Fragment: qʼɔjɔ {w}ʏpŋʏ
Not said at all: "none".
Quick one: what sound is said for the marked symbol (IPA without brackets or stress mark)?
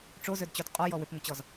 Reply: w